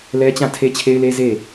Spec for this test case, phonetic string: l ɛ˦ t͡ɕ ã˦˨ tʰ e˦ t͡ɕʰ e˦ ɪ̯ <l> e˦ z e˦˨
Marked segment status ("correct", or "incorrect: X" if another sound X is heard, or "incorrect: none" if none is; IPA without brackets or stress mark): correct